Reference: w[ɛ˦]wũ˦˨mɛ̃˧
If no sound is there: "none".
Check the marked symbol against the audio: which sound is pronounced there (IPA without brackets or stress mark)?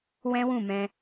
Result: ɛ̃˦